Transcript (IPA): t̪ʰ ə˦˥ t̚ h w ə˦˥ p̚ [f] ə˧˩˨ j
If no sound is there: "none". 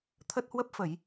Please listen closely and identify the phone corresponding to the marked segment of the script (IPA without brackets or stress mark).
f